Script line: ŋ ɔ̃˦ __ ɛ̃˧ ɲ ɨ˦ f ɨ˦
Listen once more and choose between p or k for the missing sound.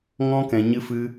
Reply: k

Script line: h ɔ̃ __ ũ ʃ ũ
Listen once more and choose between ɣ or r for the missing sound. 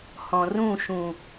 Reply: r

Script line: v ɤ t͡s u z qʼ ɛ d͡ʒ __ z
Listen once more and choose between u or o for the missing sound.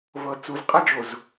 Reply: o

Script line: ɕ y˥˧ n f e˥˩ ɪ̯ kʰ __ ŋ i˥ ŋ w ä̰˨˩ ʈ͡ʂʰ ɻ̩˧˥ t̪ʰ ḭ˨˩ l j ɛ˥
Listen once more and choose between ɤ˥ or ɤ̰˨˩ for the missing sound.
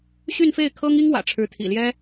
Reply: ɤ˥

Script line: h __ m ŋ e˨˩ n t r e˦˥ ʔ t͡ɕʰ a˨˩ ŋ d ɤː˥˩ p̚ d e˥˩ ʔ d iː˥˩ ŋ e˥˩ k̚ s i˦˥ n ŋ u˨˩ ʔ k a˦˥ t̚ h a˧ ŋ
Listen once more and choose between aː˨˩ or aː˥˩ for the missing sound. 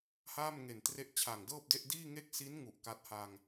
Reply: aː˥˩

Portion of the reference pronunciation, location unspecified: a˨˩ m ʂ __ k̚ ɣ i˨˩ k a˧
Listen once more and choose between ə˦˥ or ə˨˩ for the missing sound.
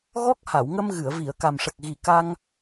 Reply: ə˨˩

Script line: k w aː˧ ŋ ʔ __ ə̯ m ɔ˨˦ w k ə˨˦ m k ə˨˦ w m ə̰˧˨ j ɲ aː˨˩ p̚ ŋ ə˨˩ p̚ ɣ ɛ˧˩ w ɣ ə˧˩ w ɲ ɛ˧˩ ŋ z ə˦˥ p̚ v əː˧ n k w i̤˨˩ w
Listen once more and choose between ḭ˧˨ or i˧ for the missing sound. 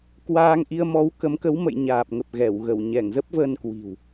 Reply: i˧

